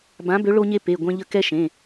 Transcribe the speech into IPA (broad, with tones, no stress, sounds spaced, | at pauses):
b ã˨˥ b ø˨˥ ɭ o˦ ɲ e˦ p e˩˧˩ ɡʷ ɛ̃˦ ʎ ə˦ k ɛ˦ ʃ ẽ˩˧˩